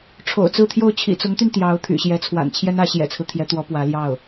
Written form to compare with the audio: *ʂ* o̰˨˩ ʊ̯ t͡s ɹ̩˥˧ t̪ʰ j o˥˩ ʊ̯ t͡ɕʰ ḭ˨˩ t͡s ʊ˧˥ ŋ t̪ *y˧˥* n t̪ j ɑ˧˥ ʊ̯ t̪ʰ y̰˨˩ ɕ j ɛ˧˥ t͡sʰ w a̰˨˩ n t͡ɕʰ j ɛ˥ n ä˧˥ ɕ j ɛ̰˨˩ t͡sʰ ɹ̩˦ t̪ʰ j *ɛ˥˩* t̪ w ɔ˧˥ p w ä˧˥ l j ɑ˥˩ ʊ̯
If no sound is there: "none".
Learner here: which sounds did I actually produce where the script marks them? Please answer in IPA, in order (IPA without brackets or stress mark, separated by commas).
ʈ͡ʂʰ, y˧, ɛ˧˥